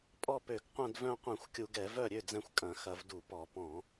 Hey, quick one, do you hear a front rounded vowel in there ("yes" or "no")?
yes